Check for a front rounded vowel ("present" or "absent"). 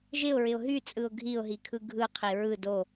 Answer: present